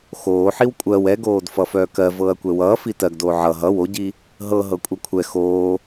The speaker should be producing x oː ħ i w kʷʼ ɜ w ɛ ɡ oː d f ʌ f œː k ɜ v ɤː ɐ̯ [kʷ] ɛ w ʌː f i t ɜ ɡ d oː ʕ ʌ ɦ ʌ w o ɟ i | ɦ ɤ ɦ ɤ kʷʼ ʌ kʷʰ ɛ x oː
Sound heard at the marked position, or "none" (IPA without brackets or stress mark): kʷ